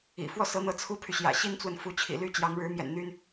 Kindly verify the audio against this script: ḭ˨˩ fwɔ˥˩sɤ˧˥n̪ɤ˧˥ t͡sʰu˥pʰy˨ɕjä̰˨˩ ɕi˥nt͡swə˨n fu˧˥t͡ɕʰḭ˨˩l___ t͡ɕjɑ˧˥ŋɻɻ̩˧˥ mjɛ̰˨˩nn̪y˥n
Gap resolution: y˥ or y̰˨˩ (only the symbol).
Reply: y˥